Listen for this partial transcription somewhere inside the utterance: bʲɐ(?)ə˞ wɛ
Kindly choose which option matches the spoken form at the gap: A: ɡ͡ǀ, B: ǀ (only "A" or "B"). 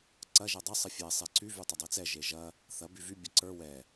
B